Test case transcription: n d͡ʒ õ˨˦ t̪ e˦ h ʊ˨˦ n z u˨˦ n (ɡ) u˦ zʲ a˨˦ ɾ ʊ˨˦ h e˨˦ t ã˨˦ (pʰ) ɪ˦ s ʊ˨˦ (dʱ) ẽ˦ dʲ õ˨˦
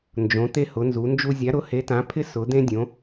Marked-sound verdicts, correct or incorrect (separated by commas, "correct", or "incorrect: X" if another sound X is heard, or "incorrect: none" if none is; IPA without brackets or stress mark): incorrect: d͡ʒ, correct, incorrect: d̪